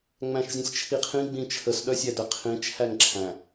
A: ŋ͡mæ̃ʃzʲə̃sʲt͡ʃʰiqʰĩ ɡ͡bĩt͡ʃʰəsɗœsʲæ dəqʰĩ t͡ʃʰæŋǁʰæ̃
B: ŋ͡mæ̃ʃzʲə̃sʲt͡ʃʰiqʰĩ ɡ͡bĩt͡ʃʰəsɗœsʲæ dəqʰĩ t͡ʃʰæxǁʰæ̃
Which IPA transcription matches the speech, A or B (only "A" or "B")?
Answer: A